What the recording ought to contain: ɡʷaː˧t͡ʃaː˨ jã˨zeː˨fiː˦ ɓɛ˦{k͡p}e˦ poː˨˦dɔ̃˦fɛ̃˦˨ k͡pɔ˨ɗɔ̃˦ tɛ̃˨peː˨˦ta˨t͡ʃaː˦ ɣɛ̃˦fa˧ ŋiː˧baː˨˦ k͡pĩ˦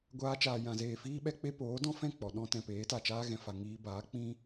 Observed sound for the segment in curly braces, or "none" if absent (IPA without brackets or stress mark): k͡p